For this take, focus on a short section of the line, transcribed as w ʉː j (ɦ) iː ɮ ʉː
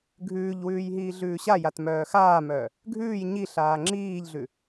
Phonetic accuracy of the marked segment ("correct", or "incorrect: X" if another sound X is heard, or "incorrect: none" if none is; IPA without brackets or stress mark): correct